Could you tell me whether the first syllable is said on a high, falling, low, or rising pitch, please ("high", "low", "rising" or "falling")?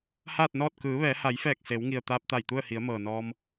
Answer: falling